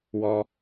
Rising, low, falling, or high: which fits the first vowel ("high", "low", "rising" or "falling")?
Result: high